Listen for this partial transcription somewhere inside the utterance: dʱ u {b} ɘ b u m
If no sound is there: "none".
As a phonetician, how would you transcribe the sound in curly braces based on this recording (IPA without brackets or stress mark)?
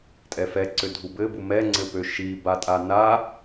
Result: b